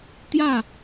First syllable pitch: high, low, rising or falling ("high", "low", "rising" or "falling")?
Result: falling